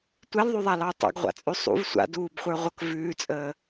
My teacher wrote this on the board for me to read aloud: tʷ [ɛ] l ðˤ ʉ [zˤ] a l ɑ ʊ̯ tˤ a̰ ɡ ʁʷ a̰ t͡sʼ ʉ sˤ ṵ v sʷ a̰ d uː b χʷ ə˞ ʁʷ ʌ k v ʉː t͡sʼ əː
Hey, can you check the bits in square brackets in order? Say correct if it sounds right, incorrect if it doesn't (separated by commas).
correct, incorrect